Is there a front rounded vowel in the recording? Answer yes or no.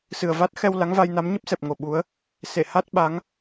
no